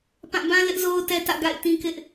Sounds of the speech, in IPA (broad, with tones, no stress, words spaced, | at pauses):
pã˦˨ bã˦ lɪ˦ʔzo˦ʊ̯tɛ˦ tä̰˦˨ɡa̰˦˨ɪ̯tĩ˦kɪ˦ʔ